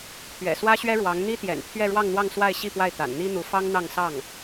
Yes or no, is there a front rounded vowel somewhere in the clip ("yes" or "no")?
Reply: no